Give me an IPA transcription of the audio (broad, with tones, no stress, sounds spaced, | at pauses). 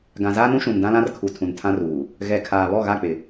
ɡ ã˨ z aː˦ n ũ˦ ʃ ũ˨ n d ã˦ l ã˦ r kʰ u˨ tʰ ũ˨ n tʰ ã˦ r uː˨ | ɣ ɛ˨ kʰ aː˨ β ɔ˦˨ ɣ a˦˨ k͡p ɪ˨